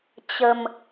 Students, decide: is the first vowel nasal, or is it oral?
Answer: oral